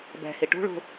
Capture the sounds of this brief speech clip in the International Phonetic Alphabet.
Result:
b ɛ̤ h i ʈ ṳ ɭ ṳ

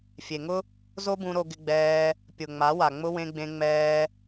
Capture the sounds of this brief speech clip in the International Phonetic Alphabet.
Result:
fʲ e˨ ŋ ʊ˦ | z o˦ b ũ˧ ɾ o˧ ɡ ɪ˧ ɡ͡b ɛː˧ | pʲ ʊ˨ ŋ͡m a˨˦ w a˨ ŋ͡m ʊ˦ w ẽ˧ ɡ͡b ẽ˧ ŋ͡m ɛː˧

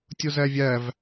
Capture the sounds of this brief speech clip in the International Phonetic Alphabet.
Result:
tʲ o z æ vʲ æ v

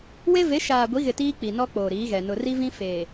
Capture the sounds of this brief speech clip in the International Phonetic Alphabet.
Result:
w e˦ v e˨˦ ʃ aː˨ ɡʷ i˨˦ ɣ ɪ˨ t iː˦ k͡p i˨ n ɔ˦ k͡p oː˨ ɾ iː˨˦ ɣ ɛ˨ n ʊ˨ r i˦ v ĩ˦ f e˨

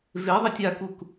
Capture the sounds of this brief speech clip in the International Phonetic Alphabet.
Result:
v e ðˤ e tʲ a k u k

